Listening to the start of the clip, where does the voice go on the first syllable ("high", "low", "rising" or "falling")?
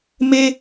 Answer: high